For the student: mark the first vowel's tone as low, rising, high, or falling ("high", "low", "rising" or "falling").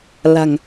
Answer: low